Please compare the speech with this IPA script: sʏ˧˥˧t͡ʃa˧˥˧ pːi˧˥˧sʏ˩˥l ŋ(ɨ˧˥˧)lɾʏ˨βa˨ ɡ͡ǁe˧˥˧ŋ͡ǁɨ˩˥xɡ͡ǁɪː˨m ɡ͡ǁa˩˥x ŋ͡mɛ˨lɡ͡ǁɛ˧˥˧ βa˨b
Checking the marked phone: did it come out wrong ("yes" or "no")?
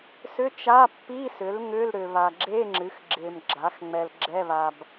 yes